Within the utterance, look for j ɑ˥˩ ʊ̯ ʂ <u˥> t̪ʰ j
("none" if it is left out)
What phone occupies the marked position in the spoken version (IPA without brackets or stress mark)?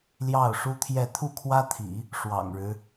u˥